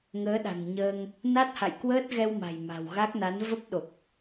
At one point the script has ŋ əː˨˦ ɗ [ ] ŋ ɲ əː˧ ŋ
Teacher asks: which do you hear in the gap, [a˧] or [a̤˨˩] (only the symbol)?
a̤˨˩